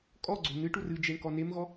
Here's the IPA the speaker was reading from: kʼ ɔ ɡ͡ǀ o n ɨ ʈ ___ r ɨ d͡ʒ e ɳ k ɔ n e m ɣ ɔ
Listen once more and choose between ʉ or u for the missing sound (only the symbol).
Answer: u